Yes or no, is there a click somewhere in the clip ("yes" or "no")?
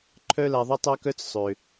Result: yes